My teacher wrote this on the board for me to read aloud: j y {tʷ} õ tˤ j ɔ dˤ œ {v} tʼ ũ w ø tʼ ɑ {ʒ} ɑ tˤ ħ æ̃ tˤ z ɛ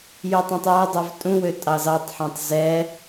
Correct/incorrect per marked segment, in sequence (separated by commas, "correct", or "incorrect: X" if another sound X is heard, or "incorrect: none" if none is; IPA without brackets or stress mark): incorrect: tˤ, correct, incorrect: z